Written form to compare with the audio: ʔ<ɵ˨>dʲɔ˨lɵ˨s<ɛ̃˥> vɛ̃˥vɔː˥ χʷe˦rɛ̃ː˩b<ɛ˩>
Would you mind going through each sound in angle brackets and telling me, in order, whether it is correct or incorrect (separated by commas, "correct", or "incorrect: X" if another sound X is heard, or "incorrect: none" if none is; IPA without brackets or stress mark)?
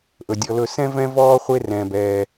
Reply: incorrect: ɵ˩, correct, incorrect: ɛː˩